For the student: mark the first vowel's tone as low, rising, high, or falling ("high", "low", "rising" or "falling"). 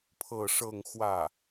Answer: falling